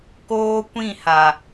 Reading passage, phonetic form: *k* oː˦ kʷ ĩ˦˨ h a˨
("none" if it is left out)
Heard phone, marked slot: k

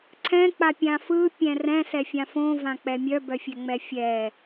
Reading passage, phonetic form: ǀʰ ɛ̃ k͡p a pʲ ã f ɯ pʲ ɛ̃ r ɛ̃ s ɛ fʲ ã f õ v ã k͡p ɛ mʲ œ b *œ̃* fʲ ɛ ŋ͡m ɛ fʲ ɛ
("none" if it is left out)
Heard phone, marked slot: œ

